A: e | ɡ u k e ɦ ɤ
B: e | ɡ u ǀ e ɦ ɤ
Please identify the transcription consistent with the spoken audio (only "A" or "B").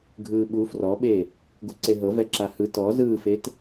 B